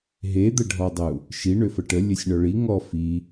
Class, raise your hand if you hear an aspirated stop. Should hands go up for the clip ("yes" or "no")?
no